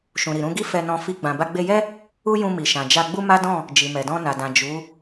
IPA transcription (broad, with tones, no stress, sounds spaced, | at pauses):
ʃ ũ˨ ɾ i˨ ɾ ũ˧ ɡ i˦ f ɛ˧ n ɔ̃˧ f i˦ ɡ͡b ã˧ b a˧ ɡ͡b e˧ j ɛ˦ | u˦ j ũ˧ m i˨ ʃ ã˨ d͡ʒ a˧ ɡ͡b u˦ m a˦ d ɔ̃˦˨ | d͡ʒ i˨ m ɛ˨ d ɔ̃˧ n a˨ d ã˨ d͡ʒ u˨˦